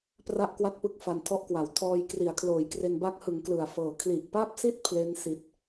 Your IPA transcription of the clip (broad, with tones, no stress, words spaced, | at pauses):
pra˥˩ʔkwa˥˩t̚pɯ˦˥k̚ fa˧ntʰɔ˥˩ʔkwa˩˦w tʰɔː˧jkri˩˦a̯kʰloː˩˦jkre˧n ba˦˥k̚hɯ˩˦ŋ klɯ˨˩a̯fɤː˨˩ kʰli˨˩ʔpa˥˩p̚si˥˩t̚ pʰle˦˥n si˨˩t̚